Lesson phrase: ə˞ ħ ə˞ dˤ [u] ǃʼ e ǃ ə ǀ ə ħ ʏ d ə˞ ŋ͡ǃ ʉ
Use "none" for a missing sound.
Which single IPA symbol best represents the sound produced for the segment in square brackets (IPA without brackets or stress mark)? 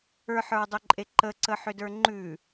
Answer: ʏ